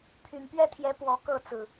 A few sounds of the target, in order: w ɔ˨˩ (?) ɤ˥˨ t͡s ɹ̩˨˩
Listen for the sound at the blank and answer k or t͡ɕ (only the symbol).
k